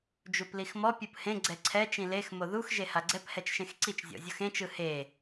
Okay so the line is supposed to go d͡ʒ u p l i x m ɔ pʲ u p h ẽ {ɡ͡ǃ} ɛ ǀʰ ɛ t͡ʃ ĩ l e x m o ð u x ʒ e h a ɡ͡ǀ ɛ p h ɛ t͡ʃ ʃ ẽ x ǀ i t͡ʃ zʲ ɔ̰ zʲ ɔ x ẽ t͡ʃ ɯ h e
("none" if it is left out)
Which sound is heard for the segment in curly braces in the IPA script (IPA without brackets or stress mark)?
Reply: ɡ͡ǀ